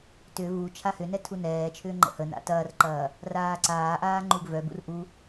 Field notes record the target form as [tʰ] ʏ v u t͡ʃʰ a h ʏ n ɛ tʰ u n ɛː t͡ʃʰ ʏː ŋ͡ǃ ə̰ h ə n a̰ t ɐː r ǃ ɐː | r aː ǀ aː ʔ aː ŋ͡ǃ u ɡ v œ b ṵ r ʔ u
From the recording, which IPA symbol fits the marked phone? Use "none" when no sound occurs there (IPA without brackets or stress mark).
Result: t